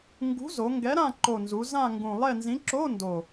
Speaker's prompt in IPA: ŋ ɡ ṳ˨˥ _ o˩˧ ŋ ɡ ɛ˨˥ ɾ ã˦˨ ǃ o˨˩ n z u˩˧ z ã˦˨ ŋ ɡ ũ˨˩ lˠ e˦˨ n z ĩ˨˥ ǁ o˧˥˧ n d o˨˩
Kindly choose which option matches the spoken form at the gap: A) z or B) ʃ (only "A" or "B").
A